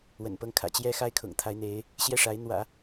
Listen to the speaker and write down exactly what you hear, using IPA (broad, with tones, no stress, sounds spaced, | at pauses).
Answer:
w ə̰˨˩ n p ɤ˥˩ ŋ kʰ ä̰˨˩ t͡ɕ j ɛ˥ x a˥ ɪ̯ kʰ ʊ̰˨˩ ŋ t̪ʰ a˧˥ ɪ̯ n̪ e˧˥ ɪ̯ | ɕ j ɛ˥˩ ʂ a˧˥ ɪ̯ n̪ w ä̰˨˩˦